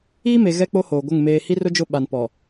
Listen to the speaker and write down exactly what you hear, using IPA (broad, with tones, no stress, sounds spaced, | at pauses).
iː˦ m e˨ ɣ ɛ˦ k͡p o˦ h oː˨ ɡʷ ɪ˦˨ ŋ m eː˨ h i˦ r ʊ˦ d͡ʒ ʊ˦ ɓ a˨ n p ɔ˨